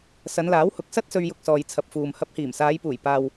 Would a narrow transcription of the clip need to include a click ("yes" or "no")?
no